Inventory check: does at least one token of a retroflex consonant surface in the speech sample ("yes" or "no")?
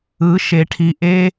yes